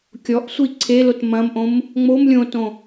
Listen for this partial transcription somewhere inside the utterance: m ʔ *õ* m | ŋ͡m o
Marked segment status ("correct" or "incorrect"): correct